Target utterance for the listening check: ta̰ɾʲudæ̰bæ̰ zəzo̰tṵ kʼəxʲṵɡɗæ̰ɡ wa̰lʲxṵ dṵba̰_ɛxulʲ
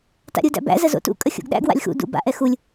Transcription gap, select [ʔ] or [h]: ʔ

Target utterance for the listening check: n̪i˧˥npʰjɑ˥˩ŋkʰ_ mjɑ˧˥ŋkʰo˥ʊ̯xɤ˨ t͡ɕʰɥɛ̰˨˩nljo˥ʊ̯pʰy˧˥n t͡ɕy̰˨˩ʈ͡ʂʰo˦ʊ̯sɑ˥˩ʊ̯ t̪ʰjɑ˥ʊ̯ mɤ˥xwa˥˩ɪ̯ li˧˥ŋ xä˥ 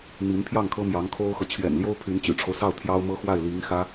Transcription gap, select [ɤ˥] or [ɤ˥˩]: ɤ˥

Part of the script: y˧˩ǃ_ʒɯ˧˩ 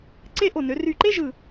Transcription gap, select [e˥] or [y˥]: e˥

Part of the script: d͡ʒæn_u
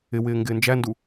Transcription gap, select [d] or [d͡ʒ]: d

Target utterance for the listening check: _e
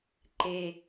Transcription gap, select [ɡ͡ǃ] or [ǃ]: ǃ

